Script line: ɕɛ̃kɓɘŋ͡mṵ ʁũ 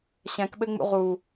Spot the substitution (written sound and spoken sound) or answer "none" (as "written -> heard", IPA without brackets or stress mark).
ũ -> u